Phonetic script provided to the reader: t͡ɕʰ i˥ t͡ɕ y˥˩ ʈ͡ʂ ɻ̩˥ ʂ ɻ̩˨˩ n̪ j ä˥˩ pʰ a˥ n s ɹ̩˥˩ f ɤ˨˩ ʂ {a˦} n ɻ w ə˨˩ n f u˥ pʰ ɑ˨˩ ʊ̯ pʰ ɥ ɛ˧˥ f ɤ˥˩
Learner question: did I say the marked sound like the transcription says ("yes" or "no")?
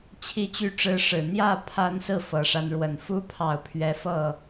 yes